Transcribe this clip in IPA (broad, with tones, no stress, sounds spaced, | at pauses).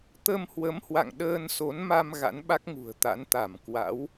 t̪ ə˧ m h w ə˨˦ m h w a̰˧˨ ŋ ɗ əː˧ n s o˨˦ n m a˧ m ɣ a̰˧˥ n ɓ a˦˥ k̚ ŋ ṳ˨˩ ə̯ t̪ a̰˧˥ n t̪ a˧˩ m k w a̰˧˥ w